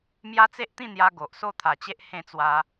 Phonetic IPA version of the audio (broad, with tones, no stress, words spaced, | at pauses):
mja˦t͡se˦ʔt̪ĩ˥˧ n̪ja˦ ɡo˨ʔso˥˧ t̪ʰa˨˩t͡ɕe˦ʔ hẽ˥˧t͡swa˧